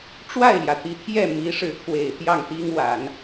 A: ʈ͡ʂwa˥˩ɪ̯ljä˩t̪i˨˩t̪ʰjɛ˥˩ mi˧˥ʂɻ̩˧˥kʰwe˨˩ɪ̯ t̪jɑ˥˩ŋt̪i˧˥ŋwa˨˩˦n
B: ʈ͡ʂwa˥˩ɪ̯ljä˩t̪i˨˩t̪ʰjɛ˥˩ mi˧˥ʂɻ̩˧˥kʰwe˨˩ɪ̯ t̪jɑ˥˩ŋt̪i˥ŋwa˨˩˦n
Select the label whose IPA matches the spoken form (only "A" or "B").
B